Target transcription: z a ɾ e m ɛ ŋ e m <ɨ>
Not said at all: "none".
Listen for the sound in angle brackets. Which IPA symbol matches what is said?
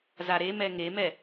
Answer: ɛ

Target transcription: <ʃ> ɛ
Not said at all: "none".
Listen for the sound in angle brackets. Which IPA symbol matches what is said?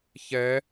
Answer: ç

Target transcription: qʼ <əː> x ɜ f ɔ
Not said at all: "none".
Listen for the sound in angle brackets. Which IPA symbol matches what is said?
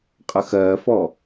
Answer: ə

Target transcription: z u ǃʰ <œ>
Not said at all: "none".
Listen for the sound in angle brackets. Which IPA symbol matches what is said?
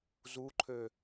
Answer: ø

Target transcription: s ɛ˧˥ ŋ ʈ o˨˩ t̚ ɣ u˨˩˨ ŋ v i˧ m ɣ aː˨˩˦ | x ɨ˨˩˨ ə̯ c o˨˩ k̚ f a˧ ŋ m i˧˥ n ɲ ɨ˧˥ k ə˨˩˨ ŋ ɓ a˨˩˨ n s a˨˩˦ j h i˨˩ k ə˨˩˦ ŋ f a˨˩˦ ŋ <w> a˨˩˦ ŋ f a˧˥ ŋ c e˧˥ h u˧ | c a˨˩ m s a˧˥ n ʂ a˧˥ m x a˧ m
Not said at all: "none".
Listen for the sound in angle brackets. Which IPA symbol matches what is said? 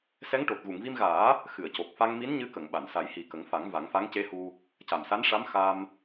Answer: v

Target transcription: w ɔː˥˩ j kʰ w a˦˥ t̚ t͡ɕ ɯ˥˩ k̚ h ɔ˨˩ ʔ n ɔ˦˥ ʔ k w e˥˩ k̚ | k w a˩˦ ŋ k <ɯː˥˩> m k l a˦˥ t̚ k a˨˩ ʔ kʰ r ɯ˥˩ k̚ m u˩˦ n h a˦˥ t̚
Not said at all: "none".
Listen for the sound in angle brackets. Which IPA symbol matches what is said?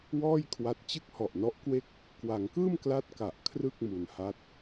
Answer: ɯː˥˩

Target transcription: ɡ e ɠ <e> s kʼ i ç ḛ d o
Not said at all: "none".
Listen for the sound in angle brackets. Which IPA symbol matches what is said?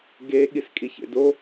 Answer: i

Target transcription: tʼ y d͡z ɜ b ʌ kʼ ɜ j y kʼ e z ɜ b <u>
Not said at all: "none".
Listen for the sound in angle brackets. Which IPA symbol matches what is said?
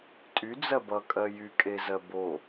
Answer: o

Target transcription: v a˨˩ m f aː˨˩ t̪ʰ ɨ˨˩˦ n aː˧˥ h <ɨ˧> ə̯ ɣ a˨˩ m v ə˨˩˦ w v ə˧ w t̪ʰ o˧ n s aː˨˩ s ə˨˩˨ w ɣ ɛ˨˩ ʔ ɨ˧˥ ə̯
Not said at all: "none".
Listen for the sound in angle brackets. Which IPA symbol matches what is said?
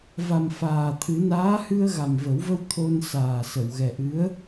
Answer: ɨ˧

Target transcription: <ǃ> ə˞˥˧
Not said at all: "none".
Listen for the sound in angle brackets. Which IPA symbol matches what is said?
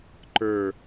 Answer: ǃ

